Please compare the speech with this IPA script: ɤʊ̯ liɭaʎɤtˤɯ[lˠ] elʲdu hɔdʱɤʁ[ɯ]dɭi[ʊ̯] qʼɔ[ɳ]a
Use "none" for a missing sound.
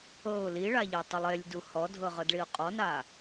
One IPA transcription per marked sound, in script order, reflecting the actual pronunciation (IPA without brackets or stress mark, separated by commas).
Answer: lˠ, ɤ, ʊ̯, n